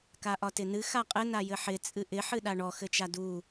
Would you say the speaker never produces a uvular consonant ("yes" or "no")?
no